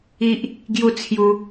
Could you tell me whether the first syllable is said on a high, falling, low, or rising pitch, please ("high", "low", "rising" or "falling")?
high